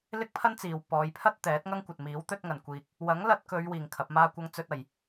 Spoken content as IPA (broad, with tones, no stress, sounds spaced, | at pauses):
l ɪ˥ k̚ pʰ ɐ˥ n t͡s iː˨ w p ɔː˨˧ j pʰ ɐ˥ t̚ t̪ ɛː˨˥ t̚ ŋ ɐ˥ ŋ kʷ ɐ˨ t̚ m iː˨˥ w t̪ ɵ˥ t̚ ŋ ɐ˨ n kʷ iː˧ k̚ | w ɐ˨˥ ŋ l ɐ˧ t̚ k ɵ˨˧ ɥ w iː˨ ŋ kʰ ɐ˨˥ p̚ m aː˥ kʷ ɐ˥ ŋ t͡s ɵ˥ t̚ ɐ˨ j